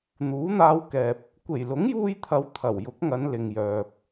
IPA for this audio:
n̪uː˨˥n̪aː˧wkɛː˨p̚ | kʷe˨˩jlʊ˨˥ŋjuː˧jt̪ʰɐ˨˧w t̪ʰɐ˨˩wjʊ˨˥k̚ŋɐ˨˧n lɪ˨ŋjœː˨p̚

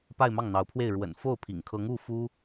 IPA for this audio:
pa˥˧ɪ̯mɑ˥˩ŋn̪ɑ˧˥ʊ̯pʰwe˥˩ɪ̯ ɻwə̰˨˩n fo˥˩ʊ̯pʰḭ˨˩ŋkʰɤ˧˥ŋ u˥˩fu˥

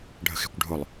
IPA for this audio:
ɖʱə̤xe̤kʷɖʱʊlˠ

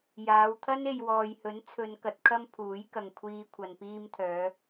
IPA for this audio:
jaː˨˧wt̪ʰɐ˥n e˨jwɔː˨jhɵ˨˥nt͡sʰɵ˨˧n kɐ˨˥t̚kʰɐ˥mpʰuː˨˥jkɐ˨ŋ kʷʰiː˧kʷʰɐ˨n piː˧mt̪ʰœː˨˧

